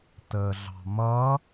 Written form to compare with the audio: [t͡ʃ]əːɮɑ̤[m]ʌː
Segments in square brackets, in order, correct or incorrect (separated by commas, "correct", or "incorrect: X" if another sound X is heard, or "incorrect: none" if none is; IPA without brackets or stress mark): incorrect: t, correct